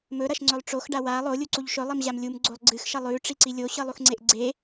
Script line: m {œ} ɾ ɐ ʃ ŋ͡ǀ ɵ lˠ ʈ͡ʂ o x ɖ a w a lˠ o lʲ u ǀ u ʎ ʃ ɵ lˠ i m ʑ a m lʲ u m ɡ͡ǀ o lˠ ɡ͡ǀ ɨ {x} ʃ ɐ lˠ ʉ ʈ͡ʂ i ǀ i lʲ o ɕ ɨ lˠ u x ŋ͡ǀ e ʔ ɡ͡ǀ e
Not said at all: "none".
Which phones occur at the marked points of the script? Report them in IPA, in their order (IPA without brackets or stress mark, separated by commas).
ɵ, x